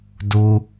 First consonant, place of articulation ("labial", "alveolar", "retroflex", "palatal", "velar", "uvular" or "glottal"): alveolar